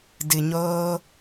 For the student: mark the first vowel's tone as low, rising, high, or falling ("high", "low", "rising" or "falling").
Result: low